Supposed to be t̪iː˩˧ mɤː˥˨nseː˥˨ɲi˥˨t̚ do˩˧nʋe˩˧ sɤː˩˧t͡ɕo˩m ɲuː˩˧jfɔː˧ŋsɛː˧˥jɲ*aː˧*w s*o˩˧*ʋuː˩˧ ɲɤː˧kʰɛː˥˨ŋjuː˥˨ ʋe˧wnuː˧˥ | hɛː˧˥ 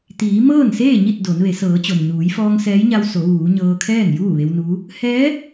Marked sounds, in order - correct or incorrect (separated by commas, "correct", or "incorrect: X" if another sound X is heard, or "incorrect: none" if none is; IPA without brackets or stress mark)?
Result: incorrect: a˧, correct